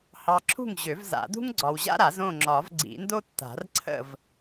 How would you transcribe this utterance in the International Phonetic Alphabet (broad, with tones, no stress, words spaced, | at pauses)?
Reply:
hɑ˨ ǁʰṳ˥˨ŋʑø˨˩˦vza̰˨˩˦dṳ˥ŋ ɡ͡ǀɒ˨wʑa̰˥ɾa˨˩˦z õ˥˨ŋ͡ǁɒ˨˩˦v ɡ͡ǀḭ˨˩˦ndo˥tːa̤˨˩˦r ǀʰə̰˥˨v